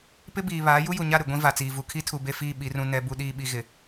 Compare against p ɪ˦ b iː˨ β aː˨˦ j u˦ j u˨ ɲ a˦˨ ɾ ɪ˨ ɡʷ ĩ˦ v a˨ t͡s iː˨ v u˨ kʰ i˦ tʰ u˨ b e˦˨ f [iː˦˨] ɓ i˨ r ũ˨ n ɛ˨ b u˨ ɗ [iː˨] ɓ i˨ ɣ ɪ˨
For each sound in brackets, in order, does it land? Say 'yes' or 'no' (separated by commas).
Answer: yes, yes